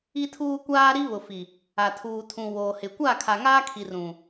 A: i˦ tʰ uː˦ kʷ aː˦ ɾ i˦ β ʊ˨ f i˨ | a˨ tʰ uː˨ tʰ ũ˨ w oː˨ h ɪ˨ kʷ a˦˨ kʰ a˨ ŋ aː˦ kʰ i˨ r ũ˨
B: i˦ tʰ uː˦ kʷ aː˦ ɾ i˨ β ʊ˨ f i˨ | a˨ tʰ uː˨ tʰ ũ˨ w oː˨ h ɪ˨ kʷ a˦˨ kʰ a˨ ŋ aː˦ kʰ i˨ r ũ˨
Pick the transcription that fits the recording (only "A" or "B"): A